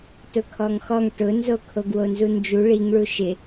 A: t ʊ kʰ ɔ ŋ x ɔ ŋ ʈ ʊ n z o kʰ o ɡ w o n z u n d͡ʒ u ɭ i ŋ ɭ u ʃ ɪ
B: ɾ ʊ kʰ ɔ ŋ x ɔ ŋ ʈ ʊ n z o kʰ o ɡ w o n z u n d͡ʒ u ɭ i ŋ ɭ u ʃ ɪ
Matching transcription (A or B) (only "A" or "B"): A